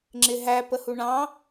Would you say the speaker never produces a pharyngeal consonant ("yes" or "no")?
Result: yes